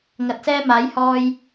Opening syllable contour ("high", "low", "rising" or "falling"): rising